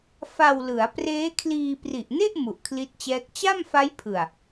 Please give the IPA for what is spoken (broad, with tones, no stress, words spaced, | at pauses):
fa˧wlɯ˩˦a̯preː˦˥kʰliː˧ pri˨˩ʔne˥˩ʔ mu˨˩ʔkʰli˦˥t̚t͡ɕɛː˦˥k̚ t͡ɕa˥˩mfa˦˥jpʰɯ˨˩a̯